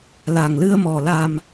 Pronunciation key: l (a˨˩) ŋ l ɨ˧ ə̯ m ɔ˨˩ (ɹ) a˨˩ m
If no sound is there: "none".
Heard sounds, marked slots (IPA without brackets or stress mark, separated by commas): a˨˩, l